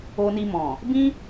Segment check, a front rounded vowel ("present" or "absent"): absent